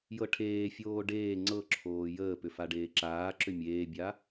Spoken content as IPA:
j ɤ ʈʰ eː fʲ oː ɖ eː ŋ͡ǀ ɤ ǁʰ oː j əː p ʏ f a ɖ eː ǁ aː ǁ ʏ mʲ eː bʲ a

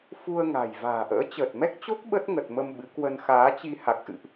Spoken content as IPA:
f u˧ ə̯ ŋ a̤˨˩ j v a̤ː˨˩ ʔ ə̰ː˧˥ t͡ɕ əː˨˩ t̚ m ɛ˦˥ k̚ t͡ɕ o˦˥ k̚ ɓ ə˦˥ t̚ ŋ ə˨˩ t̚ m ə˧ m ɓ ɨ˨˦ k w ə˧ n x aː˨˦ t͡ɕ i˧ h a˨˩ k̚ ʔ ɨ̰˧˨ ʔ

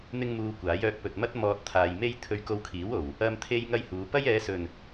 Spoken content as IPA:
n̪ ɪ˥ ŋ m uː˧ kʷ aː˨˥ j œː˧ k̚ p ɵ˨ t̚ m ɐ˥ t̚ m ɔː˨ t̚ t̪ʰ aː˨ j m e˥ j t̪ʰ ɵ˧ ɥ k o˧ w kʰ iː˨˥ w o˨˩ w | ɐ˧ m t̪ʰ e˥ j ŋ ɐ˥ j h uː˨˧ p ɐ˥ j ɛː˨˧ s ɵ˨˩ n

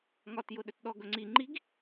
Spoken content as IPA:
ŋ ɒ t j ʊ ɗ ɵ t ɗ ɔ ɡ ɵ ŋ͡ǀ i ŋ͡ǃ i ɡ

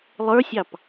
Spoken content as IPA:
lˠ ə˞ sʲ ɑ p

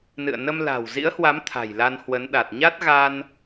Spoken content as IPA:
n ɨ̰˧˨ ə̯ n ə˧ m l a̤˨˩ w z ḭ˧˥ ə̯ h w a˨˦ m t̪ʰ a̤˨˩ j l a˧ n h w ə˨˦ n ɗ a˨˩ t̚ ɲ a˦˥ t̚ ɣ a˧ n

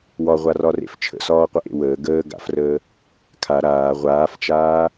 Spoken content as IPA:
w ɒ ʁʷ a r ɒ r ḛ f t͡ʃʰ ə̰ s ɒː qʷ ə ʔ ḛ w əː ɡ əː ɡ a̰ f r əː | kʰ a ɾ aː ʁʷ aː f t͡ʃ aː

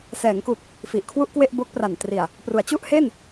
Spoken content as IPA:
s ɛː˩˦ ŋ k u˨˩ k̚ | f i˨˩ ʔ kʰ w u˥˩ ʔ k w e˥˩ ʔ b o˦˥ k̚ p r a˨˩ n t r i˨˩ a̯ | p r u˩˦ a̯ t͡ɕ u˥˩ ʔ h e˥˩ n

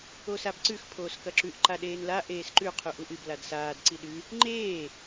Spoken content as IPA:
o s a b ǀ ʉ x pʰ oː s k ɐ ǁ ʉ ʔ ǃ a ɗ eː n l a ʔ eː s ǃ ʉ qʰ u ʔ u ʔ ɨ b l a d s aː d ǀ i ɗ ʉ | ŋ͡ǃ eː

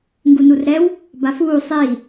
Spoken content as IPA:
ŋ ɡ u n u r ɾ ɛ w | b a f uː sˤ i

